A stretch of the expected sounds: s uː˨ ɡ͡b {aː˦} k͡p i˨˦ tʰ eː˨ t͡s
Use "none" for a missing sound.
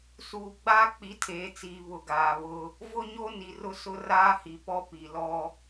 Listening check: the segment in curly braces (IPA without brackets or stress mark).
aː˦